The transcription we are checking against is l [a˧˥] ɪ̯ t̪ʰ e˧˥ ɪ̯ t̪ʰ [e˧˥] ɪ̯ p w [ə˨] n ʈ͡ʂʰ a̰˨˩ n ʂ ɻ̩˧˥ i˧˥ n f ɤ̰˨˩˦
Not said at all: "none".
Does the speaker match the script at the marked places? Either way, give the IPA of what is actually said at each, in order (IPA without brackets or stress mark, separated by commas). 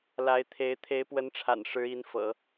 a˧˥, e˧˥, ə˧˥